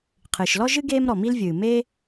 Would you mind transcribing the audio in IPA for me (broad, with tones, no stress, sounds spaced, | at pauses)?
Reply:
qʰ ɨː˩ ʃ l ɔ˥ ʒ ɨ˥ ɡ eː˥ m ɾ ɔ˩ m i˥ l vʲ ɨː˩ m eː˥